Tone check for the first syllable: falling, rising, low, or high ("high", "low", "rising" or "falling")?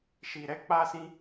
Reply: low